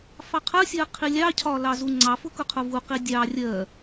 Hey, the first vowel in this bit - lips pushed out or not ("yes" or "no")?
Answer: no